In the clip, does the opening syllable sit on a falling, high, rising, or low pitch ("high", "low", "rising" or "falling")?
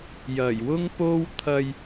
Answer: low